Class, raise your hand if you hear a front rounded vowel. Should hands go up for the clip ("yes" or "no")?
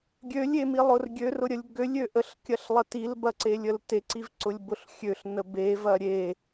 yes